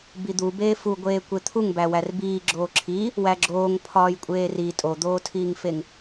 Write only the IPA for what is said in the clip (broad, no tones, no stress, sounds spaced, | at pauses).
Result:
b i d̪ u b eː f u ɡʷ eː kʷ e t̪ʰ u ŋ b æ w æ r b iː ɡ͡ǁ oː ǁʰ i | w æ ɡ͡ǁ oː ŋ pʰ ɒː j kʷʼ eː r i tʼ o d̪ oː tʰ iː ŋ f e ŋ